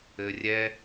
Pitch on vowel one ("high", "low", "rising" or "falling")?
low